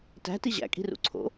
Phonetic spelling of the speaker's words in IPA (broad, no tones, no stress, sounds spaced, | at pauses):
t æ̤ t i ʑ æ̰ kʼ i̤ r ṵ ǀʰ o̰